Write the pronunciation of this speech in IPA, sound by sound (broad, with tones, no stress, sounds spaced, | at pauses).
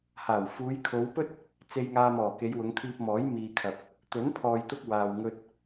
h aː˨˩ w f uː˨˧ j kʰ o˨˧ w p ɵ˥ t̚ | t͡s e˧ j ŋ aː˧ m ɔː˨˩ k e˨˧ j w ʊ˨˧ ŋ t̪ʰ iː˧ p̚ m ɔː˨˥ j m iː˨ kʰ ɐ˨ p̚ | t̪ ɵ˨˥ n pʰ ɔː˨ j t̪ ʊ˧ k̚ w aː˨ w ŋ ɵ˧ t̚